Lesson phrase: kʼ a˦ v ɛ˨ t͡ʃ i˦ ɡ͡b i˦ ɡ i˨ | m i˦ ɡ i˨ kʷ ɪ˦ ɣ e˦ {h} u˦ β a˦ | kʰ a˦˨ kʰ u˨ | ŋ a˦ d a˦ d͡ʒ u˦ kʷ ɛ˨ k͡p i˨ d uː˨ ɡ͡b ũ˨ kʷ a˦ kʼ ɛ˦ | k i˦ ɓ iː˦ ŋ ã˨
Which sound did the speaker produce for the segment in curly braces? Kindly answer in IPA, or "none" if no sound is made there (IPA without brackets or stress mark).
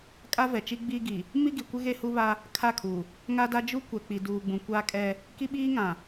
h